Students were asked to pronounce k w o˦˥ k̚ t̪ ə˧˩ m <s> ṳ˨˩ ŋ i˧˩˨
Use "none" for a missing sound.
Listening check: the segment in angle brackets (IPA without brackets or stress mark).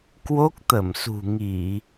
s